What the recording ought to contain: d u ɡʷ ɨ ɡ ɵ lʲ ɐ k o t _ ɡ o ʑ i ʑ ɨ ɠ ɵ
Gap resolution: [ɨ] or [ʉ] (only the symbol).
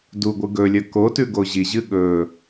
ʉ